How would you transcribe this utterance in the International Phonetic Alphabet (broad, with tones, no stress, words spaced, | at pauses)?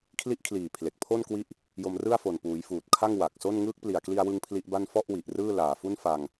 kʰli˦˥ʔkʰliː˨˩ pʰle˨˩k̚pʰo˥˩nkwi˦˥ʔ | jo˧mrɯ˥˩a̯fo˨˩n puː˩˦jfuː˨˩t̚kʰa˥˩ŋ wa˨˩k̚so˥˩n ŋɯː˦˥k̚pli˨˩a̯kli˧a̯wɯ˧ŋ pʰli˦˥ʔba˥˩n fɔ˥˩ʔwi˨˩ʔ rɯː˥˩laː˨˩fu˥˩n fa˧ŋ